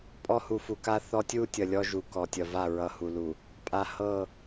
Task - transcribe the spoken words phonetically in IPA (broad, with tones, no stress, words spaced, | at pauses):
pʼɔ˦hu˨fu˨ ka˦θɔ˦ tʲu˦tʲʌ˨ lʲɔ˦ʒu˨kɔ˨tʲʌ˨ va˦˨ɹʌ˨ hu˨lu˨ | pʼa˨ hɤ˦˨